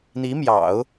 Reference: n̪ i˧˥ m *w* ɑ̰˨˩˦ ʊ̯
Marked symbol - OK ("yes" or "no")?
no